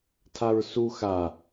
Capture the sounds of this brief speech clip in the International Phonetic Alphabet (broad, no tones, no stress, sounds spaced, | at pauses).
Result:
tʰ a ɹ s u x a